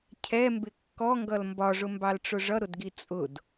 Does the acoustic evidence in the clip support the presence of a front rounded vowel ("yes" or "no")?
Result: no